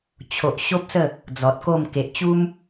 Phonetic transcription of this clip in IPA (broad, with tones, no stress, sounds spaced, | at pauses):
t͡ɕʰ o˨ ʔ ɕ o˦ p̚ s ə˥˧ | d͡z ɔ˨ t̚ k o˥˧ m k e˨ ʔ t͡ɕ u˦ m